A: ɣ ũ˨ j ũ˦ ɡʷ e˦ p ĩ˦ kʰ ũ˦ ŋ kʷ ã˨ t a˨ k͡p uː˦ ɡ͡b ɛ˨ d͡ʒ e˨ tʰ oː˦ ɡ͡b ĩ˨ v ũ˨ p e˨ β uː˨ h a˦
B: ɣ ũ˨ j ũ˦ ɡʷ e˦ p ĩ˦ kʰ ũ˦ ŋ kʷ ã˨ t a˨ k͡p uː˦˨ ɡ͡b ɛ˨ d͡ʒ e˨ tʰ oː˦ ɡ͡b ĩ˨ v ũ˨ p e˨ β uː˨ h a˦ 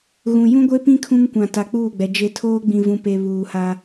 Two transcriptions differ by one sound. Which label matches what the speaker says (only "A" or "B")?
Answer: B